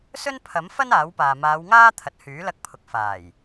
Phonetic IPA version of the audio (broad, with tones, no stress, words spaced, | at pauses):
sɵ˥npʰɐ˨˥mfɐ˥n aː˨˥wpaː˨ maː˨˧wŋaː˥t̪ʰɐ˨t̚ hyː˨˥lɐ˧k̚pʰʊ˨k̚ faː˨˩j